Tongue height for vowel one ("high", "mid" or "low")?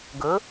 mid